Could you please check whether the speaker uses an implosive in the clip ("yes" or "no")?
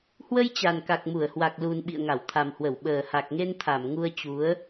yes